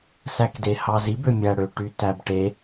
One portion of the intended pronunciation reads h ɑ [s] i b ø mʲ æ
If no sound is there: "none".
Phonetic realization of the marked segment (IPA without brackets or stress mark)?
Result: z